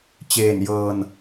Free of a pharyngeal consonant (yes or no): yes